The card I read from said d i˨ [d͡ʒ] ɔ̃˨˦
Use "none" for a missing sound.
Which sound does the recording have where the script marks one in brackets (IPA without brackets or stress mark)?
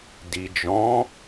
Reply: d͡ʒ